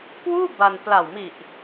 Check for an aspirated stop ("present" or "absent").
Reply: absent